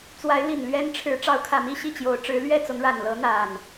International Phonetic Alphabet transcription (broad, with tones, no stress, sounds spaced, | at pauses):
t͡s w a˨˦ ɪ̯ l i˨˩ n l ɥ ɛ˦ n ʈ͡ʂʰ ɻ̩˨˦ ʈ͡ʂ ɑ˨˦ ʊ̯ kʰ ä˨˩ m i˥˨ ɕ i˥˨ t͡ɕ j o˨˦ ʊ̯ ʈ͡ʂ ɻ̩˨˦ l ɥ ɛ˥˨ t͡s ʊ˨˦ ŋ ɻ a˨˩ n l ɤ˨˦ n̪ a˨˩ n